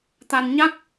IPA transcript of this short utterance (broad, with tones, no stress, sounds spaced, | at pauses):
t̪ a˧ n ɲ a˦˥ k̚